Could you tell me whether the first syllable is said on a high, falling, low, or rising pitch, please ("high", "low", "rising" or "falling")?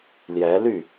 rising